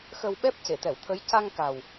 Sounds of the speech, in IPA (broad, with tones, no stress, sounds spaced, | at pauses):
x ə˧ w ɓ ɛ˦˥ p̚ c e˨˩˨ t̪ ɛ˨˩˨ w t̪ʰ ə˧˥ j c a˧ ŋ k a˨˩ w